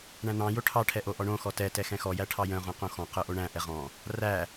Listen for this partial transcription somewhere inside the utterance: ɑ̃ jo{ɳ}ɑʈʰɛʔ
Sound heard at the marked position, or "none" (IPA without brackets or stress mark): ʈʰ